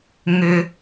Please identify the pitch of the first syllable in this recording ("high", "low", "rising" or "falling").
low